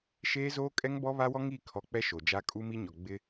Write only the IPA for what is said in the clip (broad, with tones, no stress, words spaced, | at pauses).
ʃeː˦zoː˦kʼɛ˦ŋbɔ˦ βa˦wɔ˦ŋiː˦˨kʰɔ˨ k͡pɛ˦ʃo˨d͡ʒa˦ kʼu˦mi˦ɲɔ˨ ɡ͡bɪ˦